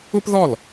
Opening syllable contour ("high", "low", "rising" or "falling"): high